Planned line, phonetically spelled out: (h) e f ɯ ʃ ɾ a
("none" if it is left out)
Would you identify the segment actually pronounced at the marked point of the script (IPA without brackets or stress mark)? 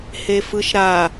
h